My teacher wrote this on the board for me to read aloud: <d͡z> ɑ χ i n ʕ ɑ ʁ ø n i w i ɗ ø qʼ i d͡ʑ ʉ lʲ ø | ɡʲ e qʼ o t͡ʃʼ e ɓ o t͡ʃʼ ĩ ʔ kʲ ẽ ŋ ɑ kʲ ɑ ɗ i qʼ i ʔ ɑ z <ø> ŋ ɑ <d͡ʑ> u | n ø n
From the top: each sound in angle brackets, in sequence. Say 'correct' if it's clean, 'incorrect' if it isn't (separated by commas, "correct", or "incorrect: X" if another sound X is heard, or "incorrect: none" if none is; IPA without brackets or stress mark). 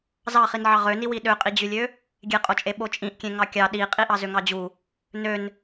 incorrect: z, correct, correct